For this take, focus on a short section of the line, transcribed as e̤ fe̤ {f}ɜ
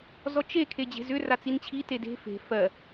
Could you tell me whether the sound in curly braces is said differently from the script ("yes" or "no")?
no